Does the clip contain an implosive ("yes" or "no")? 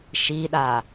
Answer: yes